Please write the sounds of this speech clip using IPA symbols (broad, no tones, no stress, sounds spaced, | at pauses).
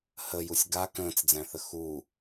h ə j u sʲ ɡ a k ə̃ː t͡s d͡z æ̃ θ ə x u